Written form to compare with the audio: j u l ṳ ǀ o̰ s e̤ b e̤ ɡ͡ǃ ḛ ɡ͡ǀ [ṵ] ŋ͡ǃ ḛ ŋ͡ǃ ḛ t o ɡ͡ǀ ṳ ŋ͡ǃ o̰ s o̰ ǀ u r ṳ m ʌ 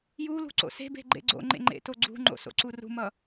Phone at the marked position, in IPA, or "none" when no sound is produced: o̰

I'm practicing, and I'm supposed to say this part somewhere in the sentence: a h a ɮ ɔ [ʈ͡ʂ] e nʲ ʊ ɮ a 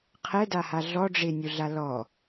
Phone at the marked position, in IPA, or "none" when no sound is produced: ɖ͡ʐ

